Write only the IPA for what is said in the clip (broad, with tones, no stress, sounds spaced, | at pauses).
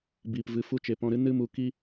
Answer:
b iː˨ p v ɨ˨ f u˧ t͡ʃ e˨ p ɔ̃˧ ɾ ɨ˦ n ɨ˦ m u˧ k i˦